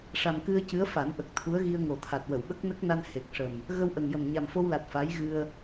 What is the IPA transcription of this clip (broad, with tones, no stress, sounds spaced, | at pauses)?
ʂ a˨˩ m k ɨ˧ ə̯ c ɨ˧˥ ə̯ f a˨˩˦ n ʔ ə˨˩ k̚ t̪ʰ u˧˥ ə̯ ɣ i˧ ə̯ ŋ o˨˩ t̪ʰ a˨˩ t̚ w ə˨˩˨ w ɓ ə˦˥ k̚ n ə˦˥ k̚ n a˧ n h e˨˩ k̚ ʂ ə˨˩ m | ɣ ə˧ w ʔ ə˨˩ ŋ j ə˨˩ m ɲ a˨˩ m f o˧ w l a˨˩ t̚ f a˧˥ j ɣ ɨ˧ ə̯